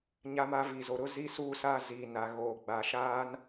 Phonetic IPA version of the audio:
ɲ a˦ m a˦ v i˨ z o˨ ɾ ʊ˦ z i˦ s uː˦ s aː˦ z iː˨ n a˨ ɣ oː˨ ɡ͡b a˨ ʃ aː˦ n

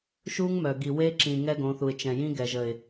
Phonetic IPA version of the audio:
ʃ u˦ ŋ m œ˨ ɡ i˨ w e˦ ǁ ĩ˨ ŋ ɛ˦ ɡ õ˨˦ θ u˨ ɪ̯ t͡ʃ ɛ̃˨ j ĩ˦ ɡ ɛ˨ ʒ ə˨ ɪ̯

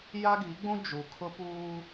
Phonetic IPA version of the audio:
j a˦ ɡ i˨˦ ɡ͡b ũ˦ d͡ʒ u˨ kʰ ʊ˦ p uː˦

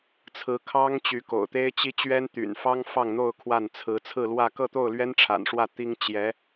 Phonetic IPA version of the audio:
t͡sʰ ɹ̩˧˥ kʰ ɑ˥ ŋ t͡ɕ y˧˥ k o̰˨˩ ʊ̯ t̪ e˥ ɪ̯ t͡ɕ i˥ t͡ɕ ɥ ɛ˥ n t̪ y̰˨˩ n f ɑ˥ ŋ f ɑ˥˧ ŋ n̪ o˥˧ ʊ̯ kʰ w a˥˩ n t͡sʰ ɹ̩˧˥ t͡sʰ ɹ̩˥˧ l w ä˥˧ k ɤ˥˧ t̪ o˥˩ ʊ̯ l ɥ ɛ˥ n ʈ͡ʂʰ a̰˨˩ n ʂ w ä˥˩ t̪ i˥ ŋ t͡ɕ j ɛ˧˥

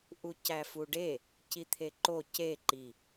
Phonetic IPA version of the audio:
ʔ u c æ f u ɖ e | c i t̪ʰ e ǃ o c e ǃ i

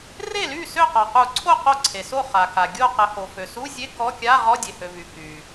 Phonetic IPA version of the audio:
r e˥˩ l y˥˩ s ø˥˩ q ɔ˩ q u˨˩˦ ǀʰ o˥˩ q o˥˩ ǀʰ e˩ s o˥˩ χ a˩ k a˩ ɡʲ o˥˩ q ə˨˩˦ h o˩ f ø˩ s u˧˥˧ zʲ e˧˥˧ k ɔ˧˥˧ kʲ a˧˥˧ ʁ ɔ˧˥˧ dʲ e˩ h ø˩ v y˩ k y˩

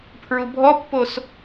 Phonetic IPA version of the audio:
pʰ ɹ u bʱ ɔ pː o s

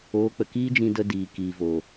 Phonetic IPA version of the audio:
oː˨˦ k͡p ə˨ k iː˦ d͡ʒ ĩ˧ d ə˧ d iː˨ k iː˨ v o˨

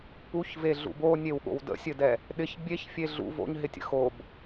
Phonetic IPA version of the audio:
p u ç v e ɮ ṵ b o nʲ e w ɠ o̰ w d ə̰ sʲ ɘ d ɛ | ɗ ɪ ç bʲ e ç fʲ e ɮ ṵ v o̰ ɲ ɦ ɪ tʲ ə̰ x o b

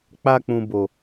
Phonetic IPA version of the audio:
k͡p a˧ k͡p ũ˨ b o˨

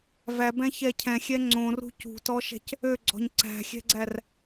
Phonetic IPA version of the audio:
v æ b ɛ̃ ç ɛ cʰ ɛ̃ xʲ ɛ ŋ͡ǀ õ r ṳ c ṳ t ɔ ʃ ɛ̤ c | ø ɡ͡ǀ ɔ̤ ɲ ǀ æ̤ xʲ ɛ̤ ɡ͡ǀ æ r

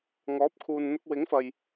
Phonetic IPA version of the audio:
ŋ ɔː˨˥ p̚ kʰ uː˨ n n̪ ʊ˧ k̚ w ɪ˨˥ ŋ f ɐ˨ j

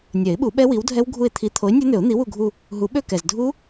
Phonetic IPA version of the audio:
nʲ ɛ˨˩˦ ɪ̯ ɓ u˨˩˦ ɓ ɛ˦˥ w i˨˥ w dʱ ɛ˦˥ w ɡʱ u˦˨ ɪ̯ t̪ʰ i˨˥ t̪ʰ o˨˥ ɪ̯ nʲ ø˦˥ n̪ ø˨˩˦ ʊ̯ n̪ i˨˥ w u˦˨ ɡʱ u˦˨ | ɦ u˨˩˦ ɓ ø˦˨ k ɛ˨ z dʱ u˦˥

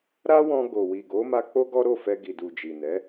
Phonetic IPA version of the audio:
ɾ a˦ w ɔ̃˧ ɡ o˨ w i˨ ɡ o˨˦ m a˧ k͡p o˦ ɡ ɔ˦ ɾ o˦˨ f ɛ˧ ɡ i˨ d u˨ d͡ʒ i˨ n ɛ˨˦

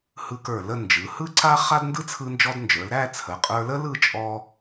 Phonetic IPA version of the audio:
h ɯ˧ k ə˞˧˩ l ə˥˧ n d͡ʒ ɯ˩˧ h ɯ˥ ǀ a˥ χ a˥ d n d ɯ˥ t͡sʰ ɯ˧ n d͡ʒ ɔ˧ d n d͡ʒ ə˞˩˧ l ɾ æ˥˧ t͡sʰ ə˩˧ qʼ ə˞˧ l ə˥ l ɯ˥˧ t͡ʃʼ ɔ˧

